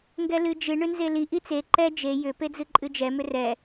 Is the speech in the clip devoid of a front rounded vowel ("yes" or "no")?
no